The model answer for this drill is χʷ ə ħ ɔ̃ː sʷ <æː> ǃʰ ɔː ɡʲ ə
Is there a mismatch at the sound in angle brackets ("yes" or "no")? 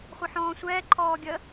yes